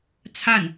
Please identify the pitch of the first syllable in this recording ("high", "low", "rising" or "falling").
falling